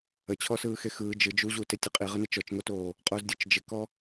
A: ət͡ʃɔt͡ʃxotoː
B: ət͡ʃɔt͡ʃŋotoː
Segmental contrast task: B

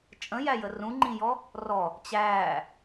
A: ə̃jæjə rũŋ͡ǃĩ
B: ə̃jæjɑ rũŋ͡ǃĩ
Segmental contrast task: A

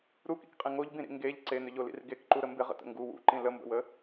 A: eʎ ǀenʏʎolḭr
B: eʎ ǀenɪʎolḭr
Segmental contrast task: A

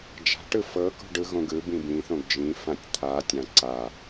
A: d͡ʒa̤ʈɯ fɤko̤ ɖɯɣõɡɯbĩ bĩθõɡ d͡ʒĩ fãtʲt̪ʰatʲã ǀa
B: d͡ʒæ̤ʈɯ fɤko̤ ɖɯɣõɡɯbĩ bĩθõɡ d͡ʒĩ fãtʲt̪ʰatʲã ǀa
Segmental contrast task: A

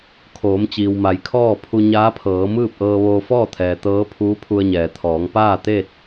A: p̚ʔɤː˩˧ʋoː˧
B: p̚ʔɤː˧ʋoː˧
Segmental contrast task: B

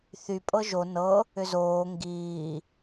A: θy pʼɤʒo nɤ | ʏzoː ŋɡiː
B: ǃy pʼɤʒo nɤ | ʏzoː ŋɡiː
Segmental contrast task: A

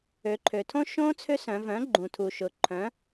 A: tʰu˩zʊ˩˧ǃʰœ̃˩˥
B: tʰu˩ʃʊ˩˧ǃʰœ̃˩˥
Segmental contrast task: B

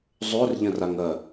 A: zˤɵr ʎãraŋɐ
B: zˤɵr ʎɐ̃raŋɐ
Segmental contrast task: B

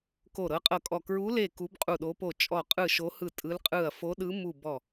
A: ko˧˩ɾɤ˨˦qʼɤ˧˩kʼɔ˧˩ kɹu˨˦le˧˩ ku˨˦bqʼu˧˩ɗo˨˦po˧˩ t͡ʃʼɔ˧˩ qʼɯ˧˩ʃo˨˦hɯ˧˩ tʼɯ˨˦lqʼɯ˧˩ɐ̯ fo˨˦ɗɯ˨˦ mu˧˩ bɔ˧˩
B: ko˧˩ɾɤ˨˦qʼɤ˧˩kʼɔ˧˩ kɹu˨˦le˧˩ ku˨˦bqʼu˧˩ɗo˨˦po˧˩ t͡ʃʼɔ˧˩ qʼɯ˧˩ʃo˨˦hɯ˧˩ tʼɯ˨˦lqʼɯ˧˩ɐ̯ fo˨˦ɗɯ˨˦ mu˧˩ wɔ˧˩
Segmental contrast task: A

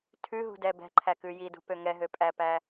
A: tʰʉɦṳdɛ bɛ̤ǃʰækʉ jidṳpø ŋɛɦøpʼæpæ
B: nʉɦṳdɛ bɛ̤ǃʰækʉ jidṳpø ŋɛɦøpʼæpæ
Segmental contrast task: A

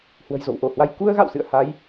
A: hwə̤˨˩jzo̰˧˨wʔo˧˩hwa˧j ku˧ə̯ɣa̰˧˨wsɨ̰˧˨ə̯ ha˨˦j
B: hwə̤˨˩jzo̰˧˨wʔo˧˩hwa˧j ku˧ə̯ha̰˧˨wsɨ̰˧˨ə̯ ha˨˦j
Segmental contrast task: A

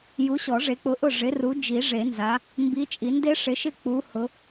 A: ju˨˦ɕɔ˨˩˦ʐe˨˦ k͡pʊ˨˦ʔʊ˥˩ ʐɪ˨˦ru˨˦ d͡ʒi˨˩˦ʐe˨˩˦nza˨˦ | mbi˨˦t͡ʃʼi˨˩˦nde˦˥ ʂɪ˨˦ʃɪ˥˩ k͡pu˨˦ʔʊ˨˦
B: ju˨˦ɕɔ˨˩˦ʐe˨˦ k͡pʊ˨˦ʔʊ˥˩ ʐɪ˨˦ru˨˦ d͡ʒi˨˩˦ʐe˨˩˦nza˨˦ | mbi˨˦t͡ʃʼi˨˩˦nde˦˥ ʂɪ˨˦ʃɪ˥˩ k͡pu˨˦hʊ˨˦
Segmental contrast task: B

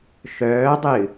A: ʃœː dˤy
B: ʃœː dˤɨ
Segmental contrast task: B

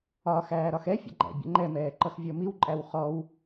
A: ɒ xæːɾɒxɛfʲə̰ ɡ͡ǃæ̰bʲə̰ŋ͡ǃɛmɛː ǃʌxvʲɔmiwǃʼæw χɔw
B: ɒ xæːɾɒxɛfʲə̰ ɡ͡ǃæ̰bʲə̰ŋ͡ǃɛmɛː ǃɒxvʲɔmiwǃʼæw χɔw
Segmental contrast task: A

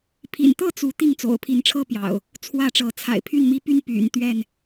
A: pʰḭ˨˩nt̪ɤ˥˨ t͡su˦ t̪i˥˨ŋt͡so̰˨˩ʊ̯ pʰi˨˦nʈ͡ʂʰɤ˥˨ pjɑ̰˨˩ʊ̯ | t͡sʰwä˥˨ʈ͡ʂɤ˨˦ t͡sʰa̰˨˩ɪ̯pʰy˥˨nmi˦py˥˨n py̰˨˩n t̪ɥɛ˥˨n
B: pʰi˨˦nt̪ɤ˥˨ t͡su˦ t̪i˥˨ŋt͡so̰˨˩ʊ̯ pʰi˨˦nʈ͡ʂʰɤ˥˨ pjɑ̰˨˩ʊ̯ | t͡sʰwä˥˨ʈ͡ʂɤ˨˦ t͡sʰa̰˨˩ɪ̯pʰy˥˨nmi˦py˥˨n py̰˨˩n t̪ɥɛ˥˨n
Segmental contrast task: A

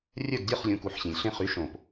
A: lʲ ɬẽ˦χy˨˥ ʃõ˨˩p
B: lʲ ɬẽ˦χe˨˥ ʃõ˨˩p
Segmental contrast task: A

